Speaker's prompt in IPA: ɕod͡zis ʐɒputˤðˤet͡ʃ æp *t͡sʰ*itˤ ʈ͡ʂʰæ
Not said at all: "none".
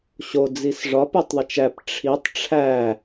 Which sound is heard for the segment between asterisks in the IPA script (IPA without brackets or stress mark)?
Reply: ʈ͡ʂʰ